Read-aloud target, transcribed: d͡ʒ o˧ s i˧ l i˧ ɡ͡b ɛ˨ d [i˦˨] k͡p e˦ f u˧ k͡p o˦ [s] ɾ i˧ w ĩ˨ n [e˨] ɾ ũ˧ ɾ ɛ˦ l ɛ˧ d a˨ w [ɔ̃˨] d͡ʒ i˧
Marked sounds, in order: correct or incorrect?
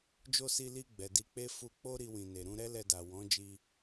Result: incorrect, incorrect, correct, incorrect

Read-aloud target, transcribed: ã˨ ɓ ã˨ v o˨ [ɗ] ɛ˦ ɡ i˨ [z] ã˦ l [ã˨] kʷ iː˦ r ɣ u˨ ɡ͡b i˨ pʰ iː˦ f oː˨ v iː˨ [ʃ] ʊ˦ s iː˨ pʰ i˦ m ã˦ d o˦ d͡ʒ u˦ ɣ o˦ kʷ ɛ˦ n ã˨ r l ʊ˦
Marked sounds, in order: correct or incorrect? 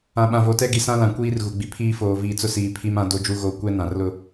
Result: incorrect, incorrect, correct, incorrect

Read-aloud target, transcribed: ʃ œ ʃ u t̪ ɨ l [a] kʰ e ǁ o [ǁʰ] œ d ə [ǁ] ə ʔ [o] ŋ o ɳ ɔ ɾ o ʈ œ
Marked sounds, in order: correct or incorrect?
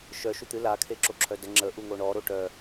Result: correct, correct, incorrect, incorrect

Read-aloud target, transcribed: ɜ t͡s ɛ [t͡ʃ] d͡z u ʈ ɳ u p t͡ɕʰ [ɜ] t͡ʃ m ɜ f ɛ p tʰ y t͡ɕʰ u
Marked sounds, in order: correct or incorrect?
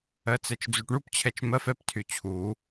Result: correct, incorrect

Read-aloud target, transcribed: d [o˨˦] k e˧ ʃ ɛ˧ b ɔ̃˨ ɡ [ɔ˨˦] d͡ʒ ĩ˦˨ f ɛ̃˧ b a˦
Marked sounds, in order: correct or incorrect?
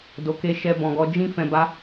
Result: incorrect, correct

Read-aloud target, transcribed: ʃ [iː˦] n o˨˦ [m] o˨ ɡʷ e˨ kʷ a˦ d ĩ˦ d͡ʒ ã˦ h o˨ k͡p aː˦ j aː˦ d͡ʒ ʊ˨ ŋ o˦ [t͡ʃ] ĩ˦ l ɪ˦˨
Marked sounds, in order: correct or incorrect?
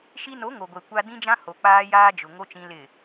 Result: incorrect, incorrect, correct

